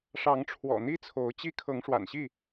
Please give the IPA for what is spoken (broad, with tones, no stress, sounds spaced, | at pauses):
ʂ ɑ˨˦ ŋ ʈ͡ʂʰ w ɔ̰˨˩ n̪ i˦ t͡sʰ o˨˦ ʊ̯ t͡ɕ i˦ kʰ ɤ˨˦ ŋ ʂ w a̰˨˩ n ɕ i˥˨